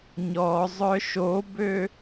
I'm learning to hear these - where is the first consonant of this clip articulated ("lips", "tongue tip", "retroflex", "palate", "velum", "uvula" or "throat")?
palate